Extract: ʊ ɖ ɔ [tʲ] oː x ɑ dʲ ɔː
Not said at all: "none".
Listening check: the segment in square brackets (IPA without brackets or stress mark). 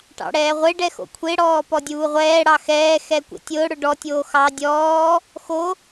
tʲ